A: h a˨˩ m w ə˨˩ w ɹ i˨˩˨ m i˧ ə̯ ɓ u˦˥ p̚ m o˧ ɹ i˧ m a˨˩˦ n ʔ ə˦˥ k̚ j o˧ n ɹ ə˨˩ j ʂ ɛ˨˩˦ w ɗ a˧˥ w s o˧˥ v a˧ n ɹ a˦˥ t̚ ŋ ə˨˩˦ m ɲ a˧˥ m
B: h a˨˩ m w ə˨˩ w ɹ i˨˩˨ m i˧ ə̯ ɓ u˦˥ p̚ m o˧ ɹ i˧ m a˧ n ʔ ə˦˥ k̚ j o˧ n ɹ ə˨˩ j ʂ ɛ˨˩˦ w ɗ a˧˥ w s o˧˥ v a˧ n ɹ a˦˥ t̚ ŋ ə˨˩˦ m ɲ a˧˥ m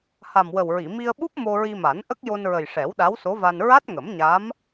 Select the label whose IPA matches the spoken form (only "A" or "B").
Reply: A